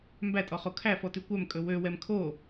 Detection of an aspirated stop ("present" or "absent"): present